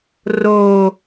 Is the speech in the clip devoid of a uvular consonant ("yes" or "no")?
yes